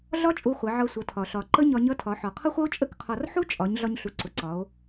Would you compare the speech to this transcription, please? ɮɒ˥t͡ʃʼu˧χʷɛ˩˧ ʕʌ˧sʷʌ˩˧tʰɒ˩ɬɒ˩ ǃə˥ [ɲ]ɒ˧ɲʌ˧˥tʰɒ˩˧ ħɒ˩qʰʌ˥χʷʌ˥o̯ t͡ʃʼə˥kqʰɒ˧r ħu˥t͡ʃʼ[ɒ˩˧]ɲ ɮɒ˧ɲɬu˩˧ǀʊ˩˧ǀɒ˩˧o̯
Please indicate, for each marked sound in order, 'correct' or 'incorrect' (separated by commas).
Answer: correct, correct